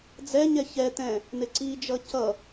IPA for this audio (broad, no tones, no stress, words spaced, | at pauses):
d͡zɛɲɛ çɛt̪ɛ̃ | n̪ɪǀid͡ʒʌ cʌ